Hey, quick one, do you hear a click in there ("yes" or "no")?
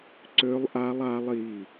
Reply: yes